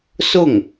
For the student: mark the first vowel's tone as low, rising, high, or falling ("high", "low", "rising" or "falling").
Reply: falling